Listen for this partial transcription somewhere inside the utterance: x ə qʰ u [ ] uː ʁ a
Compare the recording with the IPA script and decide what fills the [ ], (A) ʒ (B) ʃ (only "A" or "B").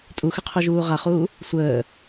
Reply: A